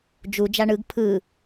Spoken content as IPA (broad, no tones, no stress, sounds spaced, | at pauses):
d͡ʒ u d͡ʒ a ɳ ɯ ɡ pʰ ɯ